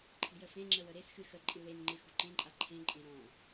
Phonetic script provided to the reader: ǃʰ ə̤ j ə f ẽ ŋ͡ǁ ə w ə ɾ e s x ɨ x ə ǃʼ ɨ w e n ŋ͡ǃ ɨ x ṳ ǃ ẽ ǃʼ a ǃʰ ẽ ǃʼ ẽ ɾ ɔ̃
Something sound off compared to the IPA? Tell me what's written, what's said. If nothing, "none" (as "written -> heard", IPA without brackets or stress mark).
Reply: none